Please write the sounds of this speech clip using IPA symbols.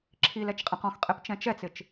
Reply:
ǁʰilɛt͡ʃqʼẽq ɔ̃xqʼept͡ʃɛ̃ t͡ʃɛt͡sɪt͡ʃ

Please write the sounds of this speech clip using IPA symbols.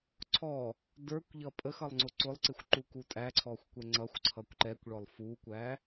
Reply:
ǀʰɔ | də˞kʷ ʎʌpʼəxʌlˠ ŋ͡ǀʊǀʊlˠǀɪxʷ ǃukutʼæǀʰɔxʷ kʷɛŋ͡ǀʌxʷǀʰʌkʷ ǃɛkʷɭɔlˠ fukʷæ

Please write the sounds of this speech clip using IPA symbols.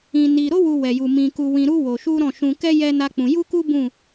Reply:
ĩ˧ni˧ ɾo˦wu˧ wɛ˧ju˧ mĩ˧ku˧ wĩ˧ɾu˦ wo˧ʃu˦ɾɔ̃˦˨ ʃũ˧kɛ˦ jɛ˦na˦k͡pũ˧ ju˦ku˦ bũ˦˨

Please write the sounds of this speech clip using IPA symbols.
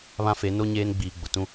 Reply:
βã˦fe˨˦ no˦ ɲeː˦nɡ͡biː˨ɡ͡bʊ˨tũ˦

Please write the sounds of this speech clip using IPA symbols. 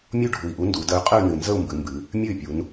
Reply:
mʲu˥˧ɖʱu˨˩i̯ʔu˧˥ ndu˩˧də˧˥y̯qʼɨ˥˧y̯ nɨ˨˩nzə˥˧u̯mbɨ˩˧ mbɨ˩˧ | mʲɨ˥˩y̯pʲu˩˧n

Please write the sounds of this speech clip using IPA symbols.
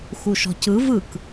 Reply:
xuʃɔ̤cɯ vɯk

